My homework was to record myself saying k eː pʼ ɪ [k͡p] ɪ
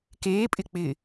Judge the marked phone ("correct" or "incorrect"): correct